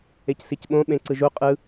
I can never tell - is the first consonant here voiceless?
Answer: yes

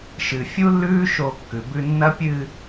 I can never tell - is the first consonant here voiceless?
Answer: yes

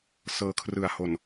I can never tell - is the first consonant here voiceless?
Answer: yes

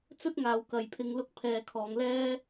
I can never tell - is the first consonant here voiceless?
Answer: yes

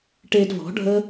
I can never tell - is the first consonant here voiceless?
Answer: yes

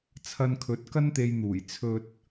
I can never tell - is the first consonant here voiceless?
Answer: yes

